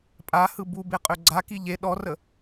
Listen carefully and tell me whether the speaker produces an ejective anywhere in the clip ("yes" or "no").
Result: yes